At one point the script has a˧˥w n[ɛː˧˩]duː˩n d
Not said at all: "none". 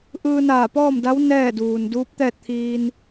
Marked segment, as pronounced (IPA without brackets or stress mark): ɛː˥˨